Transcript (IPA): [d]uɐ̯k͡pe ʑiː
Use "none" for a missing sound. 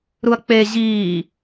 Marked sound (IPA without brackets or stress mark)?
ɾ